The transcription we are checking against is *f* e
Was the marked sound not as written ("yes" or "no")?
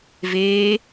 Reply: yes